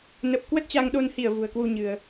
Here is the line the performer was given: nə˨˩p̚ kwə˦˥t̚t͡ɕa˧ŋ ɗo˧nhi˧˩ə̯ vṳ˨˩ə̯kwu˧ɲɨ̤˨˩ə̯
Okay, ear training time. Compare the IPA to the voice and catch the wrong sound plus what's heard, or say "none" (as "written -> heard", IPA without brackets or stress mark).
none